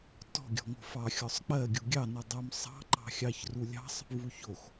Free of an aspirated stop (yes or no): yes